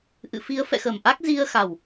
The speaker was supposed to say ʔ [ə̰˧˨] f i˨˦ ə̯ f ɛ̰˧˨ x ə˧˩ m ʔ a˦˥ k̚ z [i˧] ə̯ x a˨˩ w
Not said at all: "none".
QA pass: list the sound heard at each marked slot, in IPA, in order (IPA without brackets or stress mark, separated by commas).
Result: ɨ̰˧˨, i˧